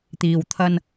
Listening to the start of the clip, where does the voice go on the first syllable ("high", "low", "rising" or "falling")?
low